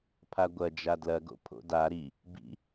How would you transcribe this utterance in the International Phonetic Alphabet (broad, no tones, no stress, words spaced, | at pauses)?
pʰaɡʷɐ d͡ʒadlɐɡo̰ pʰo̰da ɾi | bḭ